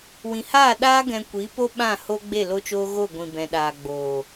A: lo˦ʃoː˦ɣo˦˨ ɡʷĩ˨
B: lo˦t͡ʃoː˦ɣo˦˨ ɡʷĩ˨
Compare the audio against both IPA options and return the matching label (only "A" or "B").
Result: B